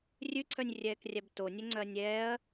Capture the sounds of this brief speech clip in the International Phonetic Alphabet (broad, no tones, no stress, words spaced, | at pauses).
rʲʉǀʰœnʲrʲɛːkrʲæb tonʲɛŋ͡ǀœɐ̯ nʲɛːɐ̯